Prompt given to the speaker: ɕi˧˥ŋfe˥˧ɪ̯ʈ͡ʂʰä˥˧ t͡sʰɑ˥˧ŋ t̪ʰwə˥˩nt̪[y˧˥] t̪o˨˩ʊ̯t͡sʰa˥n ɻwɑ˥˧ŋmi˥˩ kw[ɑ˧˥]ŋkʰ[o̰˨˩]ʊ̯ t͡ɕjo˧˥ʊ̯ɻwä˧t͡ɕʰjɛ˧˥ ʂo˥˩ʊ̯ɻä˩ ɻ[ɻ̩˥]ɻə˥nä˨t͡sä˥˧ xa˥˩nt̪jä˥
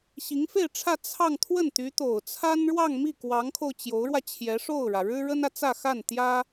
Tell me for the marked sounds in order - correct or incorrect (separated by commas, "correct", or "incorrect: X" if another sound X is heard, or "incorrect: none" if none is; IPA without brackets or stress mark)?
correct, correct, incorrect: o˧, correct